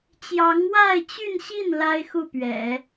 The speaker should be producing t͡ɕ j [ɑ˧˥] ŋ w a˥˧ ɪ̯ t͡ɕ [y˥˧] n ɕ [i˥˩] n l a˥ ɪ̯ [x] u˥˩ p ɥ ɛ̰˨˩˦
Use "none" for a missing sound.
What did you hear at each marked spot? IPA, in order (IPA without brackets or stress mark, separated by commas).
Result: ɑ˧˥, y˥˧, i˥˩, x